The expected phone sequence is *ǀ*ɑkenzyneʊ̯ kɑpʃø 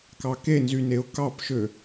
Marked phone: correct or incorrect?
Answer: incorrect: k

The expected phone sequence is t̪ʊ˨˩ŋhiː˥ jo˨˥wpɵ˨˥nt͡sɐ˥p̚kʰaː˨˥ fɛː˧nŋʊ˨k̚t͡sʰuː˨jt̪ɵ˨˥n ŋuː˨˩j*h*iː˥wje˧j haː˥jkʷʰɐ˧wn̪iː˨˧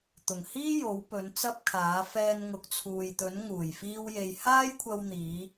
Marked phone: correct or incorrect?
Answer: incorrect: f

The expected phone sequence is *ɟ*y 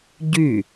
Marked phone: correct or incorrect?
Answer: correct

